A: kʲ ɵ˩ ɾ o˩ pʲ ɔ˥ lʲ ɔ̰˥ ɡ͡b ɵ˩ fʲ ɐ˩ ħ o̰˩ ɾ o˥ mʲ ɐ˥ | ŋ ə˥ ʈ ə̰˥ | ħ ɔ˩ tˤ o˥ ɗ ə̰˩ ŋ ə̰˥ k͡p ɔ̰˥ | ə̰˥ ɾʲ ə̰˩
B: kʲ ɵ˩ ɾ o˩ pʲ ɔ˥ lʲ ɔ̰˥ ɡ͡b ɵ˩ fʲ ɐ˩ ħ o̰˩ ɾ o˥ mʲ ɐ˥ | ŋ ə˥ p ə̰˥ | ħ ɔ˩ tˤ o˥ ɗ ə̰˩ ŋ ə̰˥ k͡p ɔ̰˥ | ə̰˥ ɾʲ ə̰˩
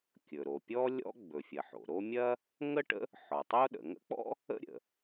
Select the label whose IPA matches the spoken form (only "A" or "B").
A